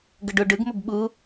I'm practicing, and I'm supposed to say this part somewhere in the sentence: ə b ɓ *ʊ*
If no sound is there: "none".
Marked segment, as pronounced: u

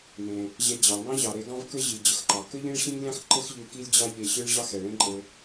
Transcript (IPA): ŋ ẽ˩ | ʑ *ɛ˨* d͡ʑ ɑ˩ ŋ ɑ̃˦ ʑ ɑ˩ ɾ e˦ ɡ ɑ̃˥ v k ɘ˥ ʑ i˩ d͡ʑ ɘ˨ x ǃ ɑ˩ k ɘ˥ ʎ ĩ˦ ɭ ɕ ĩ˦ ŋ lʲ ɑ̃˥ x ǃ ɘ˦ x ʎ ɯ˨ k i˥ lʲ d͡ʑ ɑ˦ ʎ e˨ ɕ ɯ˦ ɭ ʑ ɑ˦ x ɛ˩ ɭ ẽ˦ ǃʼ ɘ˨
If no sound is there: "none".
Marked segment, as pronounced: ɛ˨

